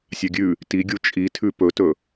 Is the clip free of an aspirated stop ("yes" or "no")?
no